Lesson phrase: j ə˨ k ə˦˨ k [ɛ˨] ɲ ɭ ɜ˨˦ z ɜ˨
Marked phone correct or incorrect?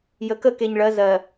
incorrect